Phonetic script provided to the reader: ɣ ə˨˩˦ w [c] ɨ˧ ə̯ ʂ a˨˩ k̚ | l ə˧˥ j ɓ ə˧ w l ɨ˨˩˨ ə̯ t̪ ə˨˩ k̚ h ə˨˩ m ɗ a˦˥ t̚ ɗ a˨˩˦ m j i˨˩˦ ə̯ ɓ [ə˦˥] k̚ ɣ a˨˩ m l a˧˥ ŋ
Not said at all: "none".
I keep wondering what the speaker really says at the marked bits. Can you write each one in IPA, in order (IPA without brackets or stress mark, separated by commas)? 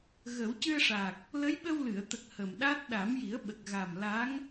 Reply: c, ə˨˩